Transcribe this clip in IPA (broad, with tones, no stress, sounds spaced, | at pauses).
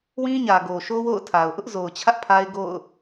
w ĩ˦ ɲ ä˨ ɡ o˨ ʃ o˦ w o̰˦˨ ʊ̯ tʰ a˨ ʊ̯ ʔ ʊ˦ ʔ z o˨ ʊ̯ t͡ɕʰ ä˦ ʔ pʰ a˦ ɪ̯ ɡ o̰˦˨ ʊ̯